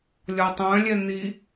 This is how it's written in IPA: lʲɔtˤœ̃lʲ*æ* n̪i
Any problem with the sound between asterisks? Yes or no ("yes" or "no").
yes